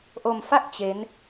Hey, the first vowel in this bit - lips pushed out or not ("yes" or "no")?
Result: yes